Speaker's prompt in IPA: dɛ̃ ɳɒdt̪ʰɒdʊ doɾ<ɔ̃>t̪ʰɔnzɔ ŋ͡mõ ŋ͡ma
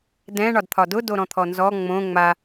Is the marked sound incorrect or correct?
correct